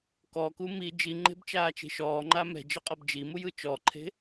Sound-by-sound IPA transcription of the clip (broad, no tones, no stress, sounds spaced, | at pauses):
k ɔ k u m i d͡ʒ i ŋ͡ǃ e̤ b t͡ʃ aː t͡ʃ e̤ ʃ ɔː ŋ͡ǃ a m ɛ̤ d͡ʒ ɤ qʼ ɤ b d͡ʒ i m u j ɯ t͡ʃ ɔ ǃʰ e̤